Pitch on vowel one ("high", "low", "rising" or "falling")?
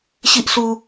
high